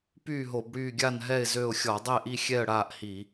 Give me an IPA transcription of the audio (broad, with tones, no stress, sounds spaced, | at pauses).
p yː˥˩ ɦ o˧˩˧ b ɽ yː˥˩ ɡʲ a˥˩ n ɦ ɛ˥˩ ɪ̯ z ø˥˩ ʊ̯ xʲ ɔ˧˩˧ dˤ ɛ˥˩ ʔ i˥˩ xʲ ɛ˥˩ ə̯ ɽ aː˥˩ ʔ h i˧˩˧